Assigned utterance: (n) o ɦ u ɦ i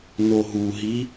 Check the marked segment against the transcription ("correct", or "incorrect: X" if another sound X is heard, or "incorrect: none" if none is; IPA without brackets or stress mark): correct